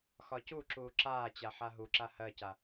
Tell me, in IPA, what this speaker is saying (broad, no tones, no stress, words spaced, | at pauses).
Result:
xɒcuǁuː ǁaːt͡ɕa ħaɦuǁa hɜca